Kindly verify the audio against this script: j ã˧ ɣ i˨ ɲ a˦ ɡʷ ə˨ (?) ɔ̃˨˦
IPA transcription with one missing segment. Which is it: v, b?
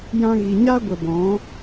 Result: b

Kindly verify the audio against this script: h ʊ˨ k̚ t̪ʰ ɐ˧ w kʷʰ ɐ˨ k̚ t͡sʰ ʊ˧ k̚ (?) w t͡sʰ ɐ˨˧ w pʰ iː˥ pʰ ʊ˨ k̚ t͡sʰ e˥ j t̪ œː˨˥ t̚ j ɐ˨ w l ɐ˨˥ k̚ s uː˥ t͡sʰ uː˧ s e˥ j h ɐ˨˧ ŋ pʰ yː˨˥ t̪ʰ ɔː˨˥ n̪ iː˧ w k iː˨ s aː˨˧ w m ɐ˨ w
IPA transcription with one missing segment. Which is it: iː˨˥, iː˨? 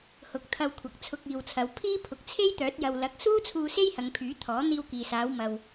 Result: iː˨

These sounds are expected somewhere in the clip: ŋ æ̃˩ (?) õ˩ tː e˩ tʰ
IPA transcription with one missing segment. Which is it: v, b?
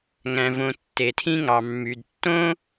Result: v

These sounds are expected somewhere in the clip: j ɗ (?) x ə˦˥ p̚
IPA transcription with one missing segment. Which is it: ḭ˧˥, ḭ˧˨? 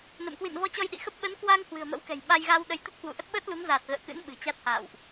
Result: ḭ˧˨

